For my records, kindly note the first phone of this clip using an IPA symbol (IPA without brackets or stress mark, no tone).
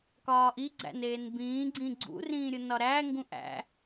k